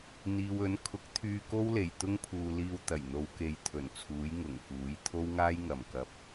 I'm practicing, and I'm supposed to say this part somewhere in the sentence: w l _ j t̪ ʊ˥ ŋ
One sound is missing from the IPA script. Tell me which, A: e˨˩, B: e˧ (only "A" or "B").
A